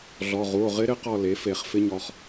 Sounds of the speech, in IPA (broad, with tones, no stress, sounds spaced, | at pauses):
ɮ ɔ˩˧˩ ʁ u˩˧˩ o̯ ʁ ɪ˦˥ ɾ ɪ˦˥ q ɔ˦˨ l e˩˥ f e˧˩˧ χ f ɪ˦˥ ɲ ɔ˩˧˩ χ